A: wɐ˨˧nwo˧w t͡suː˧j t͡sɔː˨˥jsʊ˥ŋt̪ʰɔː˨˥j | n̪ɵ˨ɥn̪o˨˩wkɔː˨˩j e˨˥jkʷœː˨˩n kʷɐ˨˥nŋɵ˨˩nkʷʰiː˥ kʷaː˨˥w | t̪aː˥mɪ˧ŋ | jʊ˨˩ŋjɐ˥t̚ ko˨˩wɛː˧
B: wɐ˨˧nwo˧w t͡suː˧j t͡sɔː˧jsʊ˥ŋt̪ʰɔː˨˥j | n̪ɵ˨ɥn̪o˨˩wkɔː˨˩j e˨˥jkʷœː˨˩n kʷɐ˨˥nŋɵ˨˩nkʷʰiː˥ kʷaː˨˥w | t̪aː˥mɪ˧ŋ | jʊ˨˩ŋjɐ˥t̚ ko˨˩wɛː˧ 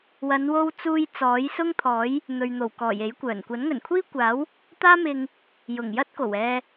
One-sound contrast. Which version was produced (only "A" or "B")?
A